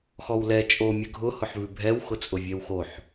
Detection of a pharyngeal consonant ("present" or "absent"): present